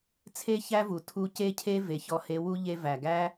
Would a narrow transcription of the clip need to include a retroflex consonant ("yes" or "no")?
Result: no